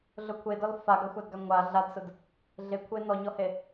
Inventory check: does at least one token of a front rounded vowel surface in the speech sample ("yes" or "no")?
no